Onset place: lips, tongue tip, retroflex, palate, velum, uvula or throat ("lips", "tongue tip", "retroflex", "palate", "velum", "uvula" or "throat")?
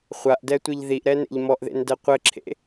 uvula